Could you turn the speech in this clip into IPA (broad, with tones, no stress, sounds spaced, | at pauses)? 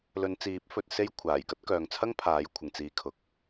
l ɵ˨˧ n t͡s iː˨˥ p̚ f ɵ˧ t̚ s e˥ j kʷʰ aː˨˩ j k ɐ˥ t̚ k œː˨ ŋ t͡sʰ ɐ˥ ŋ pʰ aː˨˥ j kʷʰ ɪ˨ ŋ t͡s iː˧ kʰ ʊ˨ k̚